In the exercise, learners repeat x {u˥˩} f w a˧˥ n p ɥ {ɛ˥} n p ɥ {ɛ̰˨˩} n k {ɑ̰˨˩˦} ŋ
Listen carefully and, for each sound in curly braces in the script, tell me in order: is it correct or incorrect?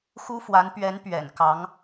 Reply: incorrect, incorrect, correct, incorrect

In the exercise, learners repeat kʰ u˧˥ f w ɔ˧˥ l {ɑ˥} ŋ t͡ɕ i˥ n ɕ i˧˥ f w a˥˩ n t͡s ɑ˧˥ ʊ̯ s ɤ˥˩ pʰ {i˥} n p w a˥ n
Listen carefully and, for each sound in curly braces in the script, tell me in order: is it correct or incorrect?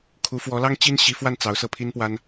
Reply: correct, correct

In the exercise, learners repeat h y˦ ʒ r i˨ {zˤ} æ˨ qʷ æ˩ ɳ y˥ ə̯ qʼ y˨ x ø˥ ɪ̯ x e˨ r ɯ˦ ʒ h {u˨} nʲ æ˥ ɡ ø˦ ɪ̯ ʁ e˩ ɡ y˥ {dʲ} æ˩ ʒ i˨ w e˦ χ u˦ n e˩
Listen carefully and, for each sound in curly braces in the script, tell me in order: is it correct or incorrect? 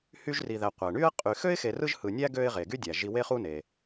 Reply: incorrect, incorrect, correct

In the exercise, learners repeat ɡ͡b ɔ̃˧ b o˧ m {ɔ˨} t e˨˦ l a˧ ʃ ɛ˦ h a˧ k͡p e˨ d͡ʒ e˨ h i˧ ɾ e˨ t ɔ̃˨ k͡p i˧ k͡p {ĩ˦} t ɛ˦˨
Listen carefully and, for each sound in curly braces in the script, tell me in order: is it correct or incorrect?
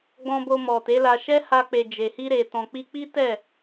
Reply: correct, incorrect

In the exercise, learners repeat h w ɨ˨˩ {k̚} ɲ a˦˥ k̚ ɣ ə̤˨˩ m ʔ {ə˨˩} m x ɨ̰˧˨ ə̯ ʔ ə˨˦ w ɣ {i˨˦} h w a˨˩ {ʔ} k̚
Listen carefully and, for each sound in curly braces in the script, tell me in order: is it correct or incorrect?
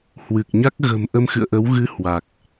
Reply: correct, incorrect, incorrect, incorrect

